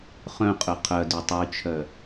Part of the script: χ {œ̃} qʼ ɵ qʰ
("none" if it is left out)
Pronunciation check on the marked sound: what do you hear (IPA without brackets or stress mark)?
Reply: œ̃